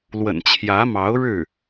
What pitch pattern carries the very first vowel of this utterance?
low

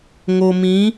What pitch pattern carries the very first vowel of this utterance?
low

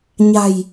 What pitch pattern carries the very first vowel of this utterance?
low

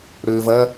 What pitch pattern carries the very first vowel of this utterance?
low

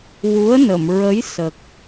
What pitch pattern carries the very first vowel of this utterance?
rising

